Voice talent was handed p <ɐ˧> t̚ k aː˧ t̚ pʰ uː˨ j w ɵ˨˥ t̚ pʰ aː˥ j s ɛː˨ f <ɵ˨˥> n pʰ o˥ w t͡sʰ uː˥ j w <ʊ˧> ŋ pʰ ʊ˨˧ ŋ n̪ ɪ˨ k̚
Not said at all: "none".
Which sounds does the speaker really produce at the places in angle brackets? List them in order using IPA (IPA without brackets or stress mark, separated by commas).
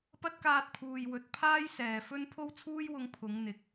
ɐ˥, ɵ˥, ʊ˧